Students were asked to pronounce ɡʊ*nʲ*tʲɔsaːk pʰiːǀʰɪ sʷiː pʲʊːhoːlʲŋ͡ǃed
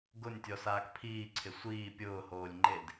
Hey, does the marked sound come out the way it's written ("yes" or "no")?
yes